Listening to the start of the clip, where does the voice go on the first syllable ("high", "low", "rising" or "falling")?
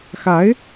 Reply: rising